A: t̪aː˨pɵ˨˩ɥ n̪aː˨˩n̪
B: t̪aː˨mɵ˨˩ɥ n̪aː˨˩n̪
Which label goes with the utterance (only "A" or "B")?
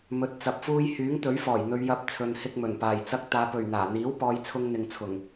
A